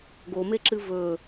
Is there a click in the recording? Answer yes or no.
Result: yes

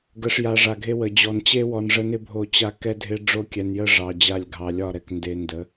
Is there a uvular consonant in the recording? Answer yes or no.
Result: no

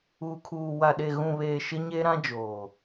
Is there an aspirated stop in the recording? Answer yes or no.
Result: yes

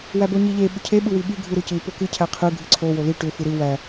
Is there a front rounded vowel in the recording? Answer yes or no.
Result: yes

